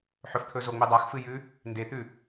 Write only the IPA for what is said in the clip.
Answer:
ħ ɵ f t̪ʰ ɵ z o ŋ͡m e dˤ a x f ɨ j ʉ | n d e t̪ ʉ

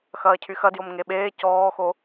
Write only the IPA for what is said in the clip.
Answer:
x ɐː cʰ y x ɐ d j o m ŋ e ɓ eː c ɔː x o

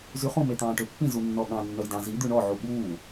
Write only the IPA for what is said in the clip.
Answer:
z y χ ũ m e t̪ ɑ̃ː ʈ ø pː ĩ z u nː ɔ ɠ ɑ̃ nː œ j d ɑ̃ z i d̪ ʉ ɳ ɔ ʕ u ɓ uː

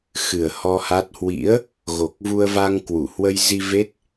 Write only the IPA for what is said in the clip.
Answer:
x ɨ˨˩ ə̯ h ɔ˧ h a˦˥ t̚ h w ḭ˧˥ ə̯ | ɣ o˨˩ k̚ v u˧ ə̯ v a˧ ŋ k w u˧˩ h w ə˧ j z i˧ v e˦˥ t̚

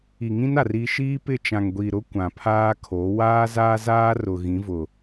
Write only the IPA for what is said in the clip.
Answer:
i˨ ŋ ĩ˦ n a˨ r i˦ ʃ iː˦ p ɪ˦˨ t͡ʃ ã˨ ŋ ɡʷ i˨ ɾ ʊ˦ kʷ ã˨ pʰ aː˦ kʰ o˨˦ w aː˦ z aː˦ z aː˦ r ʊ˨ ɣ ĩ˨˦ v ʊ˨

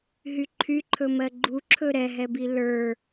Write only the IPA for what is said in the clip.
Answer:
ɦ y ǃʰ y ǃʰ ɵ m ɜ ɡ͡ǃ u ǁʰ ɵ ɾ ɛ ɦ ɛ b i l ə˞

